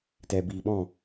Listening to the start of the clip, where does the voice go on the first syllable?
low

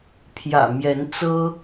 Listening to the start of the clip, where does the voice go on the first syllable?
low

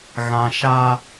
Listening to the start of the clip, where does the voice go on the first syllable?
low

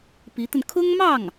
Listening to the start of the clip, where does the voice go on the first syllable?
rising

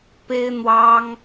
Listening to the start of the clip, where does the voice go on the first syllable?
high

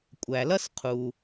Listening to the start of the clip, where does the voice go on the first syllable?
low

